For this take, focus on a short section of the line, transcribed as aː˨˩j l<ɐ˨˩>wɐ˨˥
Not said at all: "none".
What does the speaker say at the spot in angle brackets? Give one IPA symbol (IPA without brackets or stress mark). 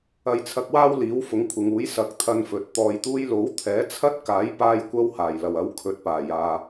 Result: ɐ˨˩